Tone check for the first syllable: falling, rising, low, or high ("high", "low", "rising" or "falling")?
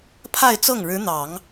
falling